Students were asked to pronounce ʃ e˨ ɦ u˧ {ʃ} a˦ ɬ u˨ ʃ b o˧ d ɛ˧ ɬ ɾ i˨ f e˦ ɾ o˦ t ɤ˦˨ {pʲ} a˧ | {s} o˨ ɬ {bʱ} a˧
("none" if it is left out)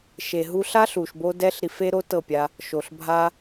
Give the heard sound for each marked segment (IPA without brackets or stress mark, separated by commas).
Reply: ɬ, pʲ, ʃ, bʱ